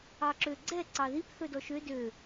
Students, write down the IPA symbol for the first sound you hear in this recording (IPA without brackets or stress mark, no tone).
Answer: ɑ